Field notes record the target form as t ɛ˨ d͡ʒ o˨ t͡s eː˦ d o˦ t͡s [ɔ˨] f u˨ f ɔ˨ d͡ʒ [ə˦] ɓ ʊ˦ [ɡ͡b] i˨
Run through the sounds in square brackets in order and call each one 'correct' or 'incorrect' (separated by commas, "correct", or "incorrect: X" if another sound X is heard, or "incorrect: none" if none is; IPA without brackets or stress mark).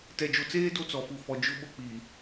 correct, incorrect: ʊ˦, incorrect: k͡p